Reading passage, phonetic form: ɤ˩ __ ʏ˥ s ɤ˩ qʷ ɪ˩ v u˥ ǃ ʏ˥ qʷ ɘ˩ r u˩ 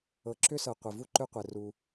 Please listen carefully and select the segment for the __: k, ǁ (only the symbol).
ǁ